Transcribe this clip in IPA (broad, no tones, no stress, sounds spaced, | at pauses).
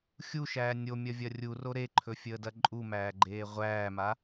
xʲ u ʃ æː nʲ o mʲ ɐ vʲ ɐ rʲ u r o ɾ e ǃʰ ɵ fʲ əː d ɐ ǃʼ u m æː ɡ͡ǃ eː ʁʷ æː m a